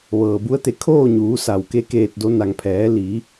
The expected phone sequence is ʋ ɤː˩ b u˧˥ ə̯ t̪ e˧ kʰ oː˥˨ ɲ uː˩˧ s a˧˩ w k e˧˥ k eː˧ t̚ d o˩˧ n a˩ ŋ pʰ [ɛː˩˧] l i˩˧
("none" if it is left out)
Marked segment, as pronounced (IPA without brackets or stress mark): ɛː˩˧